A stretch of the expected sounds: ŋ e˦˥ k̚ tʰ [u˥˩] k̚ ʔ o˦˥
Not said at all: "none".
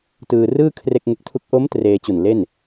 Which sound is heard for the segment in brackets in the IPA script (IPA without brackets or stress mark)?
u˥˩